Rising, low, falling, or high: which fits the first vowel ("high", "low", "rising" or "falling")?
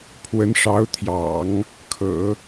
rising